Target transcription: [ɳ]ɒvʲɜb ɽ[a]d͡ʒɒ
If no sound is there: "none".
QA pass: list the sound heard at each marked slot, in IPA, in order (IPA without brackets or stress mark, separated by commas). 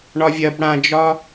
ɳ, ã